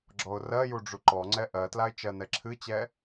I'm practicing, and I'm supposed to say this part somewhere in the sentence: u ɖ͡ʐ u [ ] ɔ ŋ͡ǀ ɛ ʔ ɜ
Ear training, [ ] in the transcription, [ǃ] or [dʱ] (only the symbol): ǃ